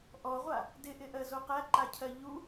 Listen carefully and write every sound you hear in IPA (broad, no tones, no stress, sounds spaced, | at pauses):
ʔ ɔ ʁʷ a | d ɪ ʔ ɪ ʔ ɜ z o q æ ǃ a cʰ ɜ ʎ u